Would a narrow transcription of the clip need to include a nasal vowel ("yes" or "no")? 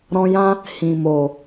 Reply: yes